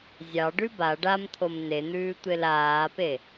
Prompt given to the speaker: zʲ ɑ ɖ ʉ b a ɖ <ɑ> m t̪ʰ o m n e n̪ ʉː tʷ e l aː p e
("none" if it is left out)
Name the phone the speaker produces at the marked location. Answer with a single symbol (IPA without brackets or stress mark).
a